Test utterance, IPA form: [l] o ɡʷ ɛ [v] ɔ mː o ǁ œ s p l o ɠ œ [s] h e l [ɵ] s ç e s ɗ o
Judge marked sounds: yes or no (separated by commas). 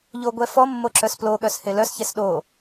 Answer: no, no, yes, no